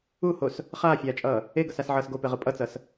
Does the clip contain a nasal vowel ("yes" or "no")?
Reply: no